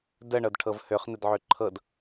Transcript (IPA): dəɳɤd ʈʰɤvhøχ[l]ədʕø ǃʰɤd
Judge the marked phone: incorrect: n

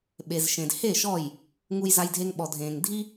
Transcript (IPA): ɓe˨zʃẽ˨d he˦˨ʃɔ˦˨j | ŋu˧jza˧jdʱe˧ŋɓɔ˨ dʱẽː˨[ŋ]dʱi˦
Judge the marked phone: correct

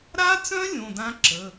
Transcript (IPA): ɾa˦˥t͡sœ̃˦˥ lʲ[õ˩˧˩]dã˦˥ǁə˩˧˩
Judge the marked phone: correct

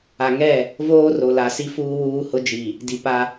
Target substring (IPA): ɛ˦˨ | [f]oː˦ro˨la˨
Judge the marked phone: incorrect: v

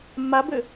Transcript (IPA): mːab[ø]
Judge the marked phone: correct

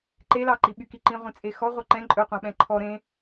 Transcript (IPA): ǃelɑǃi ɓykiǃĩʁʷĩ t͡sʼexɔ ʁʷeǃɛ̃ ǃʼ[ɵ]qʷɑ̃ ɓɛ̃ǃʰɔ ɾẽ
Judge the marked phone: correct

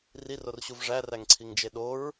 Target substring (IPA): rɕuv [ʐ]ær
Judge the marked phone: correct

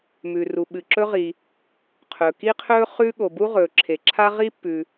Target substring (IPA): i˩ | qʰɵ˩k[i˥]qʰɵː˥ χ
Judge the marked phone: correct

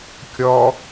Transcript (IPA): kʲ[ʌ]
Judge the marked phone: incorrect: ɔ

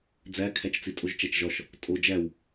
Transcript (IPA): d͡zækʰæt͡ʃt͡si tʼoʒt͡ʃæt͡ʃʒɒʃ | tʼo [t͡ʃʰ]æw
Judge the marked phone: incorrect: d͡ʒ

